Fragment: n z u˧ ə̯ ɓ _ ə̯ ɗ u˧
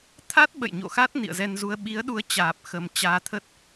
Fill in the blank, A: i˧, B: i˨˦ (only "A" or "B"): B